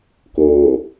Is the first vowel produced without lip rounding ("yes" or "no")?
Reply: no